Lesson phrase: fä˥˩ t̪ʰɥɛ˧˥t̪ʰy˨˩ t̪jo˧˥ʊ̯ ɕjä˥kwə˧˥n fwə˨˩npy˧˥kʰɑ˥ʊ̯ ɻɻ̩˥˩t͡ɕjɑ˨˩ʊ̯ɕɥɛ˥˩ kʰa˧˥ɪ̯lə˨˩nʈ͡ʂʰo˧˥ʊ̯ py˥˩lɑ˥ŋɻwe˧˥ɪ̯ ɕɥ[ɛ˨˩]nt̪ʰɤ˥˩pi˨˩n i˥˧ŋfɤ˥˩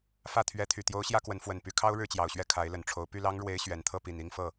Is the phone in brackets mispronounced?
no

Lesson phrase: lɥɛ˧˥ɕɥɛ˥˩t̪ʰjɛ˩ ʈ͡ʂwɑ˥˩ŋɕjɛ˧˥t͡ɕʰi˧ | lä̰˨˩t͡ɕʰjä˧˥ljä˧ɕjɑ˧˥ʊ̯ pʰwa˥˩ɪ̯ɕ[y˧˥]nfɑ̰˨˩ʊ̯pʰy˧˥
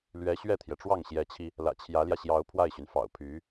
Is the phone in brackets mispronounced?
yes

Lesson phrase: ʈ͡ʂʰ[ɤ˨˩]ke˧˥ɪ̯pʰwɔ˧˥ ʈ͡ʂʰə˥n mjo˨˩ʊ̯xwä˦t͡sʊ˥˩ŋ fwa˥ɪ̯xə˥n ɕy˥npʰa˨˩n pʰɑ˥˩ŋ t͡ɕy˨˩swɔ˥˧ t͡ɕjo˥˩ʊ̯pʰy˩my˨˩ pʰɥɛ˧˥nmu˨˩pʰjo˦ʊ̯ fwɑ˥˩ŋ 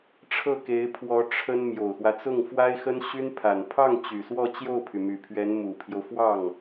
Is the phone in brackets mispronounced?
yes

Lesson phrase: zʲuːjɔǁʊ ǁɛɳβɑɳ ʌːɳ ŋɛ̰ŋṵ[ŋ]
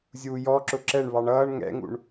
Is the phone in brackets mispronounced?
yes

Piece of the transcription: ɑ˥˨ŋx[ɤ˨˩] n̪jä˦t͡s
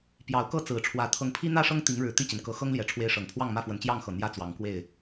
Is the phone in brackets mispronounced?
no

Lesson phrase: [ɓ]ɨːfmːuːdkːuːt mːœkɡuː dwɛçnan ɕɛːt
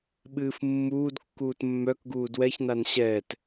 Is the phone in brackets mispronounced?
no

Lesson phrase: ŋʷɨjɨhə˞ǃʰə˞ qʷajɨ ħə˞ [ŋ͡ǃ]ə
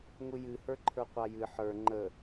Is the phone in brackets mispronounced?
no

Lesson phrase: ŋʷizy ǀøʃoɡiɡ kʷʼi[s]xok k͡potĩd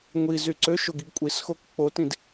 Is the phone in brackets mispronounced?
no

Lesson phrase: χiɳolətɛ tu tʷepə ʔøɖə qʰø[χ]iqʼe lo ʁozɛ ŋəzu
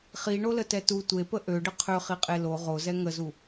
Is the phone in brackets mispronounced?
no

